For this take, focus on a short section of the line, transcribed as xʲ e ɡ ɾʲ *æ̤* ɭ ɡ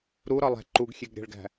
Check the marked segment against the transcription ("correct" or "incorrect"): correct